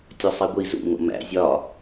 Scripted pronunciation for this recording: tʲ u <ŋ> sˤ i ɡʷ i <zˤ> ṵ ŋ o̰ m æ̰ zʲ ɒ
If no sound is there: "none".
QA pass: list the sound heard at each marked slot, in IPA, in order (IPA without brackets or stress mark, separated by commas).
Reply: none, z